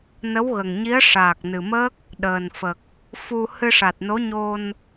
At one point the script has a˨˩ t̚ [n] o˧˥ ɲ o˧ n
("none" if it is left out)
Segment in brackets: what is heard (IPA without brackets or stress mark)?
n